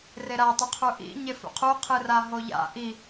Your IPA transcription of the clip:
r e ɾ a tˤ ɵ qʰ u ʔ ḭ ɲ e f ṵ qʰ u qʰ ɨ r a ɦ o ʎ a̰ ʔ i

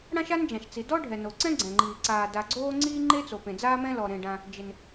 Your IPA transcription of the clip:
ɽ ã˥ ʃ a˥ n d͡ʒ ã˩ ʃ t͡s i˩ d ɔ˥ ɖʱ ɛ˩ n o˩ ǀ ɛ̃˥ ɡ͡ǀ ɛ̃˩ ŋ͡ǃ iː˩ ǀ aː˩ d a˩ ɡ͡ǀ oː˥ ŋ͡ǀ iː˥ ŋ͡ǃ e˥ t͡s o˩ p ẽ˩ d͡z aː˥ m ɛ̃˥ l ɔ˩ ɾ ẽ˩ ɖ ã˩ | d͡ʒ ɪ˩ n

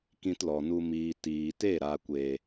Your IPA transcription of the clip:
k ĩ˧ t l ɔ˨ n u˧ m iː˨ t iː˨ t e˦˨ ɾ a˨ kʷ eː˨

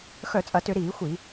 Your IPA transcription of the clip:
x œ˧˩˧ t͡sʼ ɐ˧˩˧ t ʏ˧˩˧ ɾ iː˧˩˧ xʷ i˧˩˧

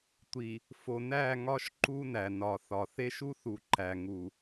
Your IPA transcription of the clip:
tʷ i˨ | f o˨ n æ˦˨ ŋ ɒ˦ ʃ ǃ u˦ n æ˨ n ɒ˨ θ ɒ˨ θ e˦ ʃ u˦ θ u˨ ǃ æ˨ ŋ u˨

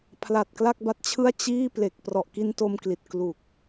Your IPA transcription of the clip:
pʰ l a˨˩ t̚ k l a˥˩ k̚ b a˦˥ t̚ t͡ɕʰ ɯ˥˩ a̯ t͡ɕ iː˥˩ p l e˨˩ k̚ p r ɔ˨˩ ʔ k i˧ n t o˧ m k l i˨˩ t̚ k l u˨˩ k̚

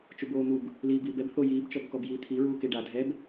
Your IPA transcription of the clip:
t͡ʃ u b oː n̪ u b | l iː b iː b ɛ b θ o j iː b t͡ʃ ɔ b k ɔ b j iː t̪ʰ i ɹ uː k e ɖ a dʱ ɛ b

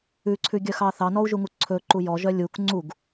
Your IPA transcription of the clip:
ʉ ǀʰ ʉ ɡʲ œ x ɑ θ ɑ n ɔ u̯ ʒ u ŋ u ǀʰ ɵ ǃ u j ɔ ʒ œ lʲ u k ŋ͡ǀ u ɡ

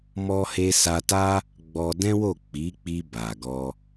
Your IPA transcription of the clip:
m ɔ˧ h e˧ s a˧ t a˦ | ɡ͡b ɔ˧ d ɛ̃˦ w o˦˨ k͡p i˨˦ k͡p i˧ b a˨ ɡ ɔ˧

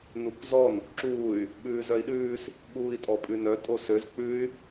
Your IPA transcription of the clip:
n u kʷ z ɔ n | ǁ uː y̯ | ɓ ʉː z œ i̯ ɗ ʉː s | ɓ uː i̯ tʼ ɔ pʼ ʉ n œ tʼ o s ø z k͡p ʉ y̯

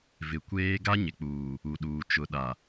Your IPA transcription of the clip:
v ɪ˨ kʷ eː˦ ɡ a˦ ɲ ɪ˨ k͡p uː˨ | u˨ ɗ uː˨ t͡ʃ ʊ˨ ɗ a˨

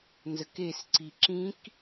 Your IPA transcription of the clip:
n z ə k e s ǀ i ǁ ĩ k

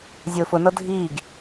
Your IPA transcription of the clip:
zʲ ʊː f ʊ n ɤ dʱ iː ɡ

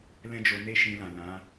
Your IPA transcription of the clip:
l ɛ̃˦ d͡ʒ o˧ n e˦ ʃ ĩ˧ l ã˨ l ã˨˦

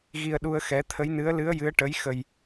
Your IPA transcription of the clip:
ɣ i˧ ə̯ ɗ u˧ ə̯ x ɛ˧˥ t̪ʰ ə˧˥ j n ɨ˧˥ ə̯ l ɨ˧˥ ə̯ j ɨ˧˥ ə̯ ʈ ə˧˥ j x ə˧ j

